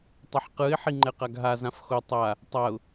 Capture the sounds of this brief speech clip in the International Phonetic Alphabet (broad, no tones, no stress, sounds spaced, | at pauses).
tˤ ʌ ħ q ɯ ɪ̯ ħ i ŋ͡ǃ ɛ q a ɡ ɦ a z ã f x o tˤ a | tˤ a ʊ̯